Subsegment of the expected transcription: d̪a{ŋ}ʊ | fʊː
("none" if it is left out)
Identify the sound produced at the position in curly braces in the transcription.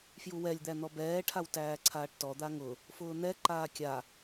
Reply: ŋ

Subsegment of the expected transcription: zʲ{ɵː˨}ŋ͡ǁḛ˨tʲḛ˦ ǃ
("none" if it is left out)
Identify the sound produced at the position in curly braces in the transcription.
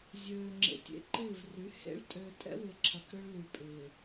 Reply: øː˨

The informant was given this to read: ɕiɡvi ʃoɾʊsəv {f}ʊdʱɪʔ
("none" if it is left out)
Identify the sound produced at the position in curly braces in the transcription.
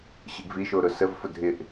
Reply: f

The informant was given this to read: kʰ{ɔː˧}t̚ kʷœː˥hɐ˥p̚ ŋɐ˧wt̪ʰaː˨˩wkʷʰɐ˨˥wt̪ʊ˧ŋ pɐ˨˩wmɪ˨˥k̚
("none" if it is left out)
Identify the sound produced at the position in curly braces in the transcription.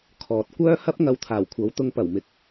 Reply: ɔː˨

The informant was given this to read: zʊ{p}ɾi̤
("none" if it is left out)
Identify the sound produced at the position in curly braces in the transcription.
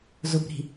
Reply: p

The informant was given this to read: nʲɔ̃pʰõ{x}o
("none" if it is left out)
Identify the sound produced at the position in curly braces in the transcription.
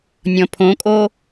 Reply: kʼ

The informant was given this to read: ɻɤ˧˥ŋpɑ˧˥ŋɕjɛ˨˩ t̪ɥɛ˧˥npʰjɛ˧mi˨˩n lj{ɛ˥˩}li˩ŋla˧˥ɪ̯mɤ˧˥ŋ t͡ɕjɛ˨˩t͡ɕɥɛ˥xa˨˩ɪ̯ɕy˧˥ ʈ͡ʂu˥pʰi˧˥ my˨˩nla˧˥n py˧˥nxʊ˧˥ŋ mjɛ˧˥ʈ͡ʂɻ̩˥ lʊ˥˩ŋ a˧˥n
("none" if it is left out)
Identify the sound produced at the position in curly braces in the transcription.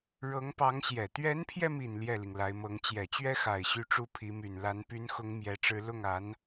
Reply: ɛ˥˩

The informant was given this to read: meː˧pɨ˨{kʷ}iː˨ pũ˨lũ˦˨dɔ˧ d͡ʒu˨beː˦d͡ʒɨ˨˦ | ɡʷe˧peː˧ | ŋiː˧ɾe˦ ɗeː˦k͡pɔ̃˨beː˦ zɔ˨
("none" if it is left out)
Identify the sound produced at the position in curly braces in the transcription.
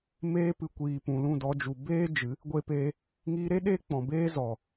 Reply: kʷ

